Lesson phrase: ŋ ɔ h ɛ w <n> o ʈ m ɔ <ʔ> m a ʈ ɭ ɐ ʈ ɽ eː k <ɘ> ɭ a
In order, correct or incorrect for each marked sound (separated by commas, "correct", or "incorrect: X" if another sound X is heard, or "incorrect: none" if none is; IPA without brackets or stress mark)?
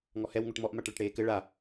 incorrect: ŋ, correct, correct